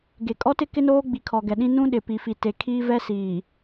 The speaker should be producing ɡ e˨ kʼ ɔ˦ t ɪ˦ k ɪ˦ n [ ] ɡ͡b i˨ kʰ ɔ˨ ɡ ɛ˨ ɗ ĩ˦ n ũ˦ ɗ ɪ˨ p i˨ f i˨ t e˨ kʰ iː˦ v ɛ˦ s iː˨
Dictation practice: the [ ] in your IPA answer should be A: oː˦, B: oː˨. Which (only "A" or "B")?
A